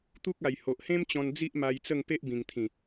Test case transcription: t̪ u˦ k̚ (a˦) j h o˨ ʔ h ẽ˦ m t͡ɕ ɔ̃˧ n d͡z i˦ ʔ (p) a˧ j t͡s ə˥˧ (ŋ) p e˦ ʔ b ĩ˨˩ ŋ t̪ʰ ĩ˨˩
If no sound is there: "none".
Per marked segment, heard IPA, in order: a˨˩, m, ŋ

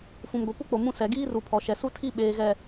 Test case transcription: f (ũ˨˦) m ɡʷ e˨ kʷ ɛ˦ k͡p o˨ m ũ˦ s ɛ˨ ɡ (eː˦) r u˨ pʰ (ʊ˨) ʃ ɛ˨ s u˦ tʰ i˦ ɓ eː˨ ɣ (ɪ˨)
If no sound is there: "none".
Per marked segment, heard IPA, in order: ũ˨, iː˦, ɔ˨, ɛ˨

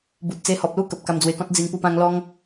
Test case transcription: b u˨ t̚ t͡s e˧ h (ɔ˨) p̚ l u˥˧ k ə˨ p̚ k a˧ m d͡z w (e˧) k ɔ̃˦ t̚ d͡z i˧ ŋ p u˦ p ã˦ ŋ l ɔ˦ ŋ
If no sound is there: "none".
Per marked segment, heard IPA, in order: ɔ˨, e˧

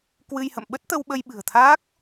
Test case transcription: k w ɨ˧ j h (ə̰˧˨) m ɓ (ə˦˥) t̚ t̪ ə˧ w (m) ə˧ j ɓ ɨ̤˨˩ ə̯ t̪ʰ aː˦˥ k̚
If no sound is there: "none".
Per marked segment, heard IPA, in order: ə̰˧˨, ə˦˥, ɓ

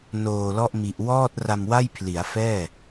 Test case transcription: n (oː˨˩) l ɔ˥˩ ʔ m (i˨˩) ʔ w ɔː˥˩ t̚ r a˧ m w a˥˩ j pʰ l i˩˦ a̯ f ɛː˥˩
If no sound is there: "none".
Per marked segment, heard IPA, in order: oː˨˩, i˨˩

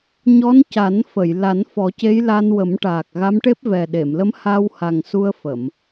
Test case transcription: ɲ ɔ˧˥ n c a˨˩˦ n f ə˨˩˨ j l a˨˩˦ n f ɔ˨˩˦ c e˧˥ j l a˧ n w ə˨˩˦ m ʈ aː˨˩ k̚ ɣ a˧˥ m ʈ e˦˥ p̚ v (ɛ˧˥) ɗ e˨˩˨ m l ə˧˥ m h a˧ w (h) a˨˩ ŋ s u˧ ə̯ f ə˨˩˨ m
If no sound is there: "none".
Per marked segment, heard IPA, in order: ɛ˨˩, h

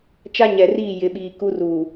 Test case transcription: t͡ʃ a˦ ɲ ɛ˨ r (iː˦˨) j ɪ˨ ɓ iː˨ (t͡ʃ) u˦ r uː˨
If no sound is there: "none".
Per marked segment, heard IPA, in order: iː˦˨, k

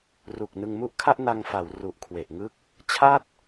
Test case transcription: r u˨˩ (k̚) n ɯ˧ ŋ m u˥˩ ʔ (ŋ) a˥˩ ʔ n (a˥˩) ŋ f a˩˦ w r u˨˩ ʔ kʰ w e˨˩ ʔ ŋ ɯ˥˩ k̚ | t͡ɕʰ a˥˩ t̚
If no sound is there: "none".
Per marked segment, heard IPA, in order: k̚, kʰ, a˧

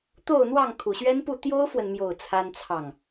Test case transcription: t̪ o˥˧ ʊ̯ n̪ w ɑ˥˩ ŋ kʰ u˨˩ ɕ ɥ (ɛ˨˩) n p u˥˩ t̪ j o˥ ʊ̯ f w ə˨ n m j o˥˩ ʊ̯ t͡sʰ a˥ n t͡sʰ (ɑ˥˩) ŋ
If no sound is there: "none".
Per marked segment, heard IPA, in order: ɛ˥, ɑ˥˩

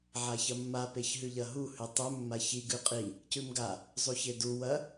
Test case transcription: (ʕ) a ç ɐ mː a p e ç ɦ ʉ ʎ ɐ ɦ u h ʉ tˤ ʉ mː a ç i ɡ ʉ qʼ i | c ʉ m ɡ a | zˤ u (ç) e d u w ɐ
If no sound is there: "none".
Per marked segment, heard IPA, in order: ʕ, ç

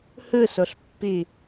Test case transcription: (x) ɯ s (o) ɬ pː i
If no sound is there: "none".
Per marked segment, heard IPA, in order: h, o

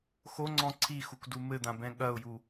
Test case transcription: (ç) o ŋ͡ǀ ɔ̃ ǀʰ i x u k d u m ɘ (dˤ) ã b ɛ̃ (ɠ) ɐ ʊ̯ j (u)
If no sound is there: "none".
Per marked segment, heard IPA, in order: x, d̪, ɠ, u

